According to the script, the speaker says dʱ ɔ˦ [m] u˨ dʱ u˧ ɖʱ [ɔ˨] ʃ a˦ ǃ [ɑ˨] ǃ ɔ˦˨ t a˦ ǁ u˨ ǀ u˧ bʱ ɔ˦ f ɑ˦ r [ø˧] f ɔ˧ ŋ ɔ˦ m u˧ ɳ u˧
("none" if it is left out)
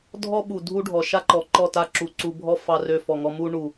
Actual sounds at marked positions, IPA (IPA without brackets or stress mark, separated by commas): ɓ, ɔ˨, ɔ˨, ø˦